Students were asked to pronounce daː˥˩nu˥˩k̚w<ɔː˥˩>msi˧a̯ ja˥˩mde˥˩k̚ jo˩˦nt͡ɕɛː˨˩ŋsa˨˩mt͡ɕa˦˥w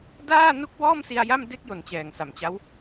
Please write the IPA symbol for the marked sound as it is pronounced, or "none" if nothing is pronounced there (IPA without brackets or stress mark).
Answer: ɔː˥˩